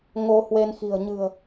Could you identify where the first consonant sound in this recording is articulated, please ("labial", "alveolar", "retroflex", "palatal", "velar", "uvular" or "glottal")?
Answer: velar